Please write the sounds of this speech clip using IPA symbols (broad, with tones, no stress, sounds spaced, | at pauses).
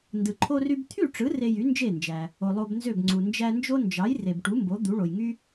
n d ɯ˩ ǃʰ o˧ r y˧ b t̪ʰ y˥˩ ʈ͡ʂ ɯ˩˥ r e˧ j y˩˥ n d͡ʒ e˥˩ n d͡ʒ æ˩ | o˩ lˠ o˧ b n z ø˥˩ b ŋ͡ǀ u˩ n d͡ʒ æ˧ n d͡ʒ o˥ n d͡ʒ ɑ˩˥ j r e˩ b ʈ u˩˥ m b o˩˥ d̪ u˩˥ ɭ o˩ j ŋ y˥